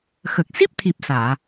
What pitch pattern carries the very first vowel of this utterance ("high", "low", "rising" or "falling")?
low